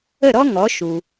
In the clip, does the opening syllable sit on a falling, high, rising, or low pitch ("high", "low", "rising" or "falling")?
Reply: falling